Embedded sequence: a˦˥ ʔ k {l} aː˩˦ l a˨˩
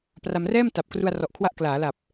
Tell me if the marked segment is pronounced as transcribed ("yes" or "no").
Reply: yes